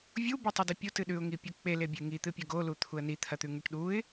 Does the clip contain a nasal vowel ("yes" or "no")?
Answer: no